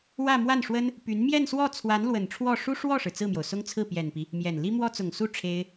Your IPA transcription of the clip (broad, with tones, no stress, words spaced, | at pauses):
wä˥˧ mwa˥˩nʂwə˥n | py˧˥n mjɛ˥˧nswɔ˥˩ t͡sʰwa˧˥nlwə˨˩nʈ͡ʂʰwɔ˥˩ ʂu˥ʂwɔ˥˩ʂɻ̩˩ t͡sɹ̩˥˩mjo˩ʊ̯sʊ˥ŋt͡sʰɹ̩˥˩ pjɛ˨˩npi˦ | mjɛ˨˩n li˥ mwɔ˥t͡sʊ˨˩ŋsu˥ ʈ͡ʂʰe˥ɪ̯